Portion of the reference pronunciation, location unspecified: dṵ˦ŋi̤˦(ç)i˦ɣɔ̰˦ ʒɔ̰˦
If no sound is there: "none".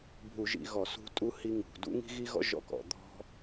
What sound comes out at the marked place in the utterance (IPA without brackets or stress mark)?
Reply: ɣ